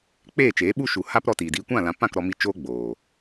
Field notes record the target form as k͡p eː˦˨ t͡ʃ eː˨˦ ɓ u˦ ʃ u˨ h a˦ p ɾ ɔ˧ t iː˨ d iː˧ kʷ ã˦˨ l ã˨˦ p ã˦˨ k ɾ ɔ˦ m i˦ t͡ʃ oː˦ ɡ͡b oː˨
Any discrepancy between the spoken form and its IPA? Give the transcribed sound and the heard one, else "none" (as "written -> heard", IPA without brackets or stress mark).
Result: none